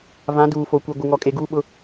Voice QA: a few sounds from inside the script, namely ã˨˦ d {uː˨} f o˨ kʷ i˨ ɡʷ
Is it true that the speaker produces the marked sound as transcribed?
yes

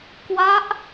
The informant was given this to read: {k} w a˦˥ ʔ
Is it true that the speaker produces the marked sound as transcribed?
yes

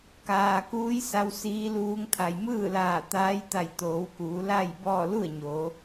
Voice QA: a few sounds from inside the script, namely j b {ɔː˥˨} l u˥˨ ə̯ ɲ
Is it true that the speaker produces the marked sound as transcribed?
yes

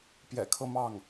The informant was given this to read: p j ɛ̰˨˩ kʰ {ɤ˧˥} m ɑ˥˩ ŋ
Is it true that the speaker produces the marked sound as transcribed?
no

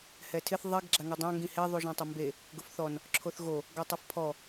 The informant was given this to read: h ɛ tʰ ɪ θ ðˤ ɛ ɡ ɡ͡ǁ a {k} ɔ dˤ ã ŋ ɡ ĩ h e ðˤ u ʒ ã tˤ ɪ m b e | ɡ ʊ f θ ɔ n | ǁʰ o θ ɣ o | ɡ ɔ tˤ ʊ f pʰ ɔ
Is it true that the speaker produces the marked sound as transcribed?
no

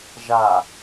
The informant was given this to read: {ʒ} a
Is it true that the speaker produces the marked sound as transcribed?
yes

